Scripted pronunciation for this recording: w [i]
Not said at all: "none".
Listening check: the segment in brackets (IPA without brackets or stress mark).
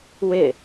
ɪ